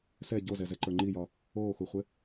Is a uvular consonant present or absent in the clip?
present